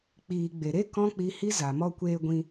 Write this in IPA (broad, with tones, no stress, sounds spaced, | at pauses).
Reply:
k͡p iː˨ ɡ͡b e˨ ɾ e˦ k ɔ̃˦ k͡p i˧ h i˦ z a˨ m ɔ˦ kʷ eː˦ ɡʷ ĩ˦